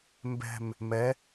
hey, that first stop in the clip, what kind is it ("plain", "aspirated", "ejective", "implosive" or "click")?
plain